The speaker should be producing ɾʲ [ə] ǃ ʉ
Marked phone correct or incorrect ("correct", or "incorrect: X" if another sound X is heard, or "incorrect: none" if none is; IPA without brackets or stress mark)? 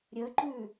correct